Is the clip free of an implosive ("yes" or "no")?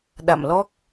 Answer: no